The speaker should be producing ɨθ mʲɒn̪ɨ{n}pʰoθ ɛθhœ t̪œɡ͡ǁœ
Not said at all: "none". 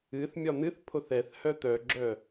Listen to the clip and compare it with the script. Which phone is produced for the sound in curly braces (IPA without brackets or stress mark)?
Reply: θ